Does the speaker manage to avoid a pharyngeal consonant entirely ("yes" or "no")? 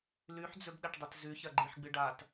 no